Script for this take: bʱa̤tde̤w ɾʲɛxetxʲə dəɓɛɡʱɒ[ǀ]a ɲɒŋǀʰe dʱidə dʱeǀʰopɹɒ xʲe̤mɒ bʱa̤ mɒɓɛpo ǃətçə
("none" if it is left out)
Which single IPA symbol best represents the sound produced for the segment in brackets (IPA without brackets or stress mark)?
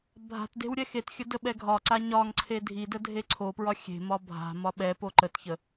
ǀ